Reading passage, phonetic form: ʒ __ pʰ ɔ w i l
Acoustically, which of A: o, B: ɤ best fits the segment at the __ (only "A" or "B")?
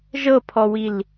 B